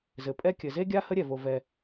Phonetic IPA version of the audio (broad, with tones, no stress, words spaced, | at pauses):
zɘ˩pʼɛ˥ kʲɘ˩ze˥ɡʲa˥ hə˥ɾʲɛ˩vo˩ vɛ˩